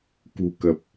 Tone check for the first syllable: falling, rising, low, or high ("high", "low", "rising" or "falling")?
low